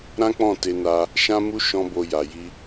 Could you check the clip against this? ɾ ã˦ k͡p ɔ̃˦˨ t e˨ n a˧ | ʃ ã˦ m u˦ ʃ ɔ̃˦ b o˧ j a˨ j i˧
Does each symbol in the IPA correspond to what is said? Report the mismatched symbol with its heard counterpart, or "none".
e˨ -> e˧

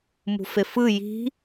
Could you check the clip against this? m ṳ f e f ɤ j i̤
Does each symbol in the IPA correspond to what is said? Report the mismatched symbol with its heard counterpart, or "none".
ɤ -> ɯ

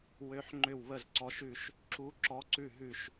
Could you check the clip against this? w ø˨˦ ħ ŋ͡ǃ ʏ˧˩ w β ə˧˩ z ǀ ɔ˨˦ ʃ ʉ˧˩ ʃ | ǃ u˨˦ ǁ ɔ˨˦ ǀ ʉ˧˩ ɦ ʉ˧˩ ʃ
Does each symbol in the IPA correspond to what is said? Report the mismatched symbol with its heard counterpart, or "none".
ǃ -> ǁ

